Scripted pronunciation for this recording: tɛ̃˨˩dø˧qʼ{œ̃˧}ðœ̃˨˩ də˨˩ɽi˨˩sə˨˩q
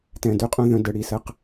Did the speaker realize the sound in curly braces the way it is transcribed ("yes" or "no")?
yes